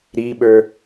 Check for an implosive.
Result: present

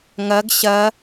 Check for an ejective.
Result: absent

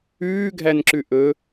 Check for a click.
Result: present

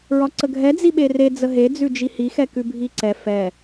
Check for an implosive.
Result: present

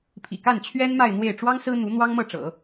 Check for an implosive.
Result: absent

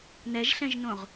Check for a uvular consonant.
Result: present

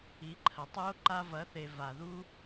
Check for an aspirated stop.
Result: present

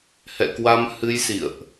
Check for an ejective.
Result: absent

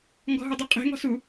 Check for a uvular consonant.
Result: present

